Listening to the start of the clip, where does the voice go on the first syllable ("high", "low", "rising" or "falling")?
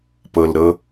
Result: low